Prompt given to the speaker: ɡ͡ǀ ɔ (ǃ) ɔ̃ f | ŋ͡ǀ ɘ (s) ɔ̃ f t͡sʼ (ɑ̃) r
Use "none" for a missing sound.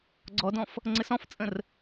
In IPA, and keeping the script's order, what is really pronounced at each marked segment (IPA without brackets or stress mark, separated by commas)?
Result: d, s, ə̃